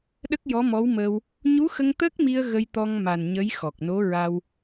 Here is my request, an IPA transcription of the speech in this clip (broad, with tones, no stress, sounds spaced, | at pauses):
ɗ ə˦˥ k̚ j ɔ˧˥ m ɔ˧˥ w m əː˧ w | ɲ u˧˥ x ə˧ ŋ t̪ ə˦˥ k̚ m i˧ ə̯ ɣ ə˧ j t̪ ɔ˧ ŋ m a˨˩ n ɲ ə˧˥ j x ɔ˨˩ k̚ n o˧˥ ɹ a˧ w